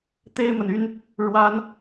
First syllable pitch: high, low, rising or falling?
high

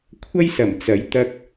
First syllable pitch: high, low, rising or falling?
high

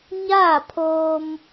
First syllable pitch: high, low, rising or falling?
falling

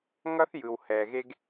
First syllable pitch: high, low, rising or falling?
high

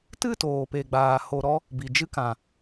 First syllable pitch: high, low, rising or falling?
falling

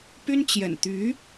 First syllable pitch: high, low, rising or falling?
high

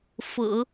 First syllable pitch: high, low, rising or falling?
low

